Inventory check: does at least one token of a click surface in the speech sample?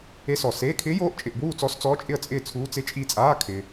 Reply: no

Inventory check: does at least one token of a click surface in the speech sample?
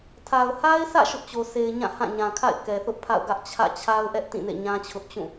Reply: no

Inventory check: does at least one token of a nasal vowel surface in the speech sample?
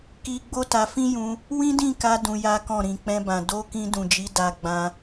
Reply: yes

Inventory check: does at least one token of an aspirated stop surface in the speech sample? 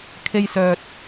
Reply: yes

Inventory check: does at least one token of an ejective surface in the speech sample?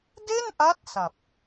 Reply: no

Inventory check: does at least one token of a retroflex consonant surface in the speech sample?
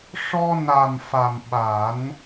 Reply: yes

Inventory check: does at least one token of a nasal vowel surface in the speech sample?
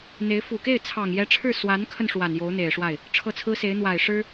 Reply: no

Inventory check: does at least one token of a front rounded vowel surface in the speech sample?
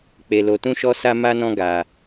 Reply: no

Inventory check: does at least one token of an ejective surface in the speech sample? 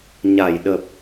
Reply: no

